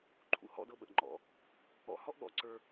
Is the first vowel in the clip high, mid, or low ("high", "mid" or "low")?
high